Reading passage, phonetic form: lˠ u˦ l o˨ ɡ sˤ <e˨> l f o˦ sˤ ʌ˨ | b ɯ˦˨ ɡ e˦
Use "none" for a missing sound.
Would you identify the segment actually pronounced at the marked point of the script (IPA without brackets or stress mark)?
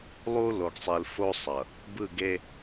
i˨